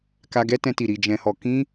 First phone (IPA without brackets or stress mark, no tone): k